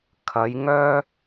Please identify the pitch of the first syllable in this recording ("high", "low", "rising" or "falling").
rising